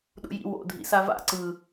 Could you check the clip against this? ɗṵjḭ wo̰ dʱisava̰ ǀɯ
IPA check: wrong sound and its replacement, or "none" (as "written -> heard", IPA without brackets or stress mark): i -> ḭ